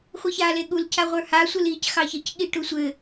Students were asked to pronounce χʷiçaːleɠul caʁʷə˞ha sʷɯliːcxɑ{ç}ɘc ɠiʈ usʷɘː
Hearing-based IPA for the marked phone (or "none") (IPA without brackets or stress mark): ç